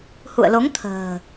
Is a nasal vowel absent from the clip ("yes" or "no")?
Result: yes